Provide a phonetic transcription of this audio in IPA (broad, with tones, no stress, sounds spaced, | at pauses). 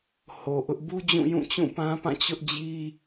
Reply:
h o˨ ʔ ʊ˦ ʔ b u˦ d͡ʑ ũ˦˨ j ũ˦˨ t͡ɕ ũ˦˨ p ã˦ p ã˦˨ t͡ɕ ʊ˦ ʔ d͡ʑ i˦